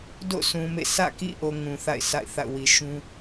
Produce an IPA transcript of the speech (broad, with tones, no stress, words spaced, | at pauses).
do̰˦˨sũ˨mḛ˦˨ sä̰˦˨kḭ˦˨ʔo˨ ŋũ˨θa̰˦˨ɪ̯sa̰˦˨ɪ̯ θa̰˦˨ʊ̯wi˨ ʃũ˦